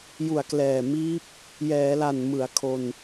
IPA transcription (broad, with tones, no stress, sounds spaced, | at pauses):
j u˨˩ a̯ k l ɛː˨˩ m iː˦˥ p̚ | j ɛː˩˦ l a˨˩ n m ɯ˩˦ a̯ kʰ o˧ n